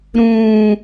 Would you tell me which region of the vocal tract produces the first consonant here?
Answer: tongue tip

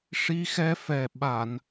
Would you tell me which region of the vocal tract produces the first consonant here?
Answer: retroflex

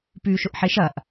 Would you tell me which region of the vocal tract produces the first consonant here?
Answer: lips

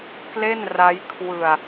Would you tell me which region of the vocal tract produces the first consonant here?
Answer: velum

